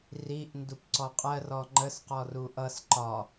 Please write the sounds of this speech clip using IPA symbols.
r i ʔ n d u p ǀ ɔ qʼ ɜ r ɔ ŋ͡ǃ ə s q ɔ r u ʔ ʌ s ǃ ɒ

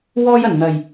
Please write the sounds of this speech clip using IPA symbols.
w ɔː˥ j ɐ˨˩ n n̪ ɐ˨˩ j

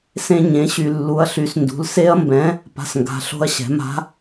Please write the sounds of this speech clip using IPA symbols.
s ẽ˧ ɲ ẽ˩˧ ɕ y˨˩ lː u˨˥ ɐ̯ ɬ y˨˥ s n d ṳ˩˧ l s e˦˥ ɐ̯ m b ɛ̃˨˥ | p a̤˨˩ s ŋ ɡ a̤˩˧ ɬ o̤˧ ɐ̯ ɕ ɛ̤˩˧ m a̤˦˥

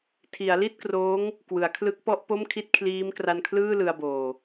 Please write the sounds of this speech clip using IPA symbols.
tʰ i˩˦ a̯ l i˥˩ t̚ k r oː˦˥ ŋ | k w ɯ˩˦ a̯ kʰ l ɯ˦˥ k̚ p ɔ˥˩ ʔ p o˥˩ m kʰ i˥˩ t̚ kʰ l iː˦˥ m k r a˧ n kʰ l ɯː˥˩ l ɯ˧ a̯ b oː˨˩

